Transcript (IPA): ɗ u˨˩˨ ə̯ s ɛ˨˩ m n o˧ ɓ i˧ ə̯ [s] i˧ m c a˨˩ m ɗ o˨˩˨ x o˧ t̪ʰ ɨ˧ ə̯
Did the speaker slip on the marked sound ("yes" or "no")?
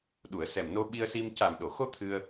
no